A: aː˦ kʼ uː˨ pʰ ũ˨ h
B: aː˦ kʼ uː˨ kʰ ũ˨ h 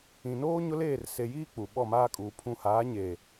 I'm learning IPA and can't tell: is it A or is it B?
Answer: A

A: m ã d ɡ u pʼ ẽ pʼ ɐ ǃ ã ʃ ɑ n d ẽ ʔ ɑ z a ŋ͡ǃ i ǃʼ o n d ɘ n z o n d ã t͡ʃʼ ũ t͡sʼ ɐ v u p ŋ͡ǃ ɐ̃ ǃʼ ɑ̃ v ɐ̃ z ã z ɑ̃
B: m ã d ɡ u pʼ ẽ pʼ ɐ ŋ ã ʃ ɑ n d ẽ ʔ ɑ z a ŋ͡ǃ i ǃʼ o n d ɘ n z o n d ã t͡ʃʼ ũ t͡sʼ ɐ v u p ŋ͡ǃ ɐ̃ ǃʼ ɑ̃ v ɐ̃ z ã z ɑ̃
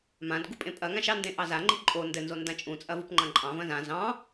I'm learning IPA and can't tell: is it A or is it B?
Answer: B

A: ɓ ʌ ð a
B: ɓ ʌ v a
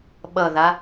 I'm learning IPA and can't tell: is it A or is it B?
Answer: A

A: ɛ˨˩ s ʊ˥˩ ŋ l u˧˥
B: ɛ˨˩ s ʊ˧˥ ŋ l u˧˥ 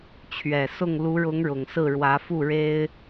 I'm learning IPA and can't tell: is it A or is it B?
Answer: A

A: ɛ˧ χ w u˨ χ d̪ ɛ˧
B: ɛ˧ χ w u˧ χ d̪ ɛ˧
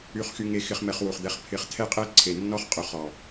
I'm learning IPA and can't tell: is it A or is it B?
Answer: A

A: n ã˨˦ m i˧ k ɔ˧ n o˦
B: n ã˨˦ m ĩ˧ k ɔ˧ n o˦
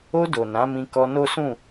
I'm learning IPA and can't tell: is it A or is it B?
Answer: B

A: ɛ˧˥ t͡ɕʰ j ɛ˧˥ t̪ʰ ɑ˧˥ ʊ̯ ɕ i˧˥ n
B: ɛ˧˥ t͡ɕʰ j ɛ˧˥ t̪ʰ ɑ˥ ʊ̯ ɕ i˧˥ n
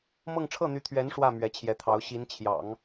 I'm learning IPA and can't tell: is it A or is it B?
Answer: A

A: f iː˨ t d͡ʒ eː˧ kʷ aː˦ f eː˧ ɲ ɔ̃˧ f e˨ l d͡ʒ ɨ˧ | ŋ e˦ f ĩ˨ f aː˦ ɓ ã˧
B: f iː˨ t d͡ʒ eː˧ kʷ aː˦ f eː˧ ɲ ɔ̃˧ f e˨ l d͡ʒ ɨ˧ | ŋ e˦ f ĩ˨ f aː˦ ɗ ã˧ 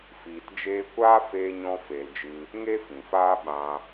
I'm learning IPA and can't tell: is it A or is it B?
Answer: A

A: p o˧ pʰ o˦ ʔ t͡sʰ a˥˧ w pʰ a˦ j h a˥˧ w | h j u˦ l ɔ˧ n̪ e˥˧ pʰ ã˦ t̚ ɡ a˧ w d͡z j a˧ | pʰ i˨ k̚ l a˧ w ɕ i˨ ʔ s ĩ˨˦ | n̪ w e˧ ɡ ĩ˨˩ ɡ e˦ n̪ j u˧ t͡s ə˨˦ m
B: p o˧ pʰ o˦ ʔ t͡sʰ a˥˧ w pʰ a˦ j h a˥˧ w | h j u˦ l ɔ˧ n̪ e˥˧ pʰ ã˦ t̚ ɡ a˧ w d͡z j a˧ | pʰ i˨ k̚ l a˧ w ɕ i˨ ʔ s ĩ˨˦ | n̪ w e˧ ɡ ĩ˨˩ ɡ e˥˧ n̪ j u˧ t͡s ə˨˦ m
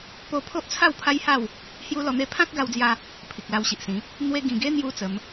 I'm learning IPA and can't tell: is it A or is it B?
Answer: A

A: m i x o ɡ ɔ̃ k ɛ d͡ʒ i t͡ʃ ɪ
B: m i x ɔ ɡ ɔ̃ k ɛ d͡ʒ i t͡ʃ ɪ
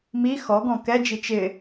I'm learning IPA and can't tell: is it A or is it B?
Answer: B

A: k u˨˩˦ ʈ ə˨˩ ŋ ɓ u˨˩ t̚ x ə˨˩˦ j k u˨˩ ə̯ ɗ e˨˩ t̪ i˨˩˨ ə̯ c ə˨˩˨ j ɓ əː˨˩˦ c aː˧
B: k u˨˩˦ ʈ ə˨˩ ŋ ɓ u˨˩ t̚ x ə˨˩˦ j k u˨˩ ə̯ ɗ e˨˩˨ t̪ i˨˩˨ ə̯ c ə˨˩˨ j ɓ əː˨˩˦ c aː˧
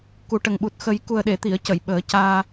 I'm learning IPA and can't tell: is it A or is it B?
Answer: B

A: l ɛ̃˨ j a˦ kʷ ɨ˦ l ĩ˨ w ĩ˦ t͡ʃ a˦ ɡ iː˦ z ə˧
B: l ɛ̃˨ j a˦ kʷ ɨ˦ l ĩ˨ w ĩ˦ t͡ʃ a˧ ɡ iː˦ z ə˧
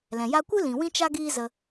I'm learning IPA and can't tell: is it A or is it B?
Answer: A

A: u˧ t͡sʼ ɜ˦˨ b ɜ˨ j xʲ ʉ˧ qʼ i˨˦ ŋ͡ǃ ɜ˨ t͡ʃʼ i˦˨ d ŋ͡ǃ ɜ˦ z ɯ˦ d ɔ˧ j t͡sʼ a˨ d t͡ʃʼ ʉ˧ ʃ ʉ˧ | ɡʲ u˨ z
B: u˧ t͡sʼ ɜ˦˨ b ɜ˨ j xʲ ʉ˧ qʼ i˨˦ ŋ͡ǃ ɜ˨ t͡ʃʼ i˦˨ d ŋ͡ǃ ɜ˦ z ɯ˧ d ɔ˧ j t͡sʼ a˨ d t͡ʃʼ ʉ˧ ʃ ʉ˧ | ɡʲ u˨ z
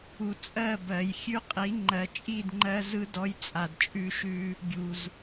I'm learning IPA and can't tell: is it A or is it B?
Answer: A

